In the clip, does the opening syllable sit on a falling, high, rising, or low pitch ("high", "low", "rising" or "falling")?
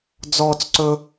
high